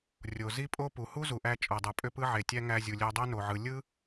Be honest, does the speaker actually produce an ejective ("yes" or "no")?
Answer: yes